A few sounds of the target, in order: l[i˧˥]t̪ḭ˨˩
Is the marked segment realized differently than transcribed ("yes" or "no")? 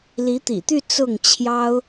no